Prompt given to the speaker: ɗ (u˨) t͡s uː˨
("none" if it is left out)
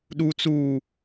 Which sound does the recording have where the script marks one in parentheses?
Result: u˨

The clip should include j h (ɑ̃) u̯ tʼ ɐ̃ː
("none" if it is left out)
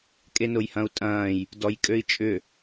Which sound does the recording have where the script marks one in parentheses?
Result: ɐ̃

